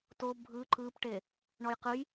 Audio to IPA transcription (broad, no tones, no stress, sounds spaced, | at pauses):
t o bʱ ɯ ǃ ɯ p ʈ e | ɳ ɔ j q ɯ j